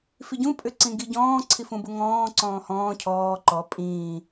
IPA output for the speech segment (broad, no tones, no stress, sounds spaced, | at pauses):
f i ɟ ũ pʼ ʏ ǀ ĩ ɡ i ɟ ɔ̃ː ǀʰ i f ũ b u ŋ ɔ̃ː ǀ ɔ̃ː h ɔ̃ː cʰ ɔː ǃ ɔ pʼ ĩː